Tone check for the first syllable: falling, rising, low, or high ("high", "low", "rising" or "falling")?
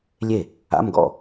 falling